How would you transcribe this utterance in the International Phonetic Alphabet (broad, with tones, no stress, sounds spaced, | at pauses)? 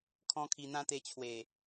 kʰ ɔ̃˦ kʰ i˧ n̪ ã˦ t̪ e˧ t͡ɕʰ w e˨˩